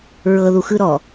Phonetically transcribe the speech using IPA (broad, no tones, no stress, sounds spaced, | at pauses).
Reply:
ɹ ɤ ð u x ɯ ɾ ɔ